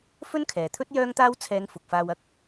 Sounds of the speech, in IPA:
f ɵ˥ n kʰ ɛː˨ t̪ʰ ɵ˥ t̚ j œː˥ ŋ t̪ aː˥ w t͡sʰ ɛː˨˧ ŋ f ʊ˨ k̚ f aː˧ w ɐ˥ k̚

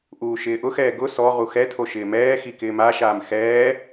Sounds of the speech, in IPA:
ʔ uː ʃ ɪː ʔ ʊ x ɛː ɡ ʊ s ɔ ʁ u x ɛ tʰ o ʃ ɪː m ɛː x i k ɪː m a ʃ aː m x ɛː

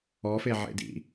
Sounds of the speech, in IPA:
ɔ f e ʕ ḛ d ḭ

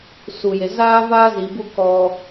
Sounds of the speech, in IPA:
s u˨ j e˨ z aː˦ v aː˦ z i˨ b u˦ k ɔ˦

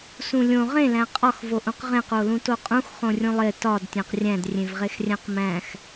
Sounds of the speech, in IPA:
s ũ lʲ õ ʁ ẽ l æ̃ qʼ ɒ x v o ʔ ũ q ʁ ẽ q o l ũ t o qʼ ũ x χ õ rʲ ũ lˠ e t ɒ d tʲ æ̃ q rʲ æ̃ d rʲ ẽ v ʁ e x rʲ æ̃ q m æ̃ x

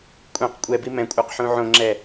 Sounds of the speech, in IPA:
kʷʼ ẽ q kʷʼ ɛ b i m ɛ̃ kʷʼ a q ħ ũ ʕ õ ŋ͡ǁ ɛ

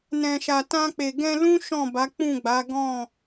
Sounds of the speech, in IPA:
n ɛ̃˨ ʃ a˨ t ã˧ k͡p e˨ ɡ ɛ̃˧ l ũ˦ ʃ ɔ̃˦˨ b a˨˦ k͡p ũ˦˨ ɡ͡b a˨˦ ɡ ɔ̃˦˨

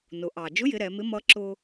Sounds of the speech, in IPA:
n ʊ˩˧ ʔ ɑ˩ d͡ʒ ʊ˧˥ j ɪ˩˧ ɾ ɛ˩˧ m ɪ˧˥ m ʌ˧˥ ǁ ʊ˧

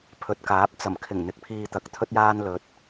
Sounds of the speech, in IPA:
pʰ ɵ˨ t̚ k aː˨˥ p̚ t͡s ɐ˨˩ m kʰ ɪ˨˩ ŋ n̪ ɪ˨ k̚ pʰ iː˧ t̪ ɐ˨˥ k̚ t̪ʰ ɵ˧ t̚ j aː˧ n l ɵ˧ t̚

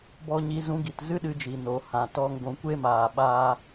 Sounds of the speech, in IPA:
b ɔ˧ ɲ i˧ z ũ˧ ɡ i˨ t z ɨ˦ ɗ ɨ˧ d͡ʒ i˨ n o˨ h ã˨ t ɔ˧ ŋ ɡʷ ũ˨ kʷ e˦ m aː˨ ɓ aː˧

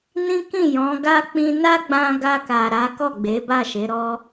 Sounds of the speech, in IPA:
n ĩ˦ k ĩ˦˨ j ɔ̃˨˦ ɡ a˧ k͡p ĩ˧ n a˦ ɡ͡b ã˧ ɡ a˧ k a˨ ɾ a˨˦ k ɔ˦˨ ɡ͡b e˨˦ b a˦˨ ʃ e˨˦ ɾ ɔ˦

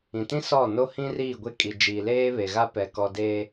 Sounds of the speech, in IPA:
ĩ˨ t ĩ˦ s ɔ˦˨ n o˦ h ĩ˦ r iː˦˨ ɡʷ e˦ kʼ i˨ d͡ʒ iː˨ l eː˦ β e˨ ɣ a˦ p ɛ˨ k ɔ˨ d eː˨

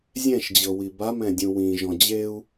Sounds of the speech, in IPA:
zʲ ɛ̃ ʃ d͡ʑ ɤ w i b a m ɛ̃ dʲ ũ w ĩ ʒ ɔ̃ d͡ʑ e u̯

